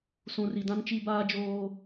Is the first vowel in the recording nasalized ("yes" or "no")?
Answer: yes